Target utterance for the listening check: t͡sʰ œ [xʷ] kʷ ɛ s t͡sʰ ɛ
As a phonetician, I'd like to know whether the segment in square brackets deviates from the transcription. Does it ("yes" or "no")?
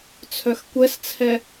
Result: yes